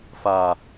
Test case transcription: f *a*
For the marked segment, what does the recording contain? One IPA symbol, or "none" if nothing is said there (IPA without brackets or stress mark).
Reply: a